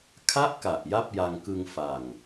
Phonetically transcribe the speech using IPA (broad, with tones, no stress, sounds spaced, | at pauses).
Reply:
kʰ a˥˩ ʔ k a˨˩ ʔ j a˥˩ p̚ j a˧ ŋ k ɯ˧ ŋ f a˨˩ ŋ